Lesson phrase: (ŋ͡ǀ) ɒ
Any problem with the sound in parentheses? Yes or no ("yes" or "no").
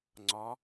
no